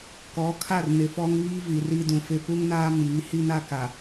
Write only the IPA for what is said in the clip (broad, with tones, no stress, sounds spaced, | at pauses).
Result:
k ɔ˨˦ kʰ a˦˨ r n ɪ˨ f ɔ˦ ŋ β iː˦ v i˨ r i˦ d ũ˨ f ɪ˦ p u˦ ŋ n aː˦ m iː˨˦ h i˦ n a˦ k a˨